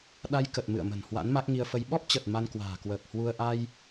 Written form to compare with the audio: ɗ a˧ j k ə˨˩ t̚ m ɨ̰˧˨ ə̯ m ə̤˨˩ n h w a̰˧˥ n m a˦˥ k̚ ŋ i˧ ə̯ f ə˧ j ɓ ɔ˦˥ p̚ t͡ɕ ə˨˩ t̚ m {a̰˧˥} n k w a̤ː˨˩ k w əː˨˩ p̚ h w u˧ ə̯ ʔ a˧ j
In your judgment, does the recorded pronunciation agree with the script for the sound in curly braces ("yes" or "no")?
no